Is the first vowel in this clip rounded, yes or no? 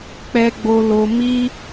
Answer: no